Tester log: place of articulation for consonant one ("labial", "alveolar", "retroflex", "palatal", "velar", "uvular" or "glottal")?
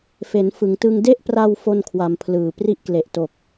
labial